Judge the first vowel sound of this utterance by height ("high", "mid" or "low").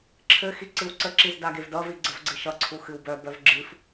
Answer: mid